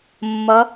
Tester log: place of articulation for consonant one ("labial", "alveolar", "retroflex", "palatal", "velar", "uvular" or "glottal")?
labial